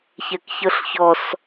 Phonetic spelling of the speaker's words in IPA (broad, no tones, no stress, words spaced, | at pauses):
çɛkçɤɬçɔs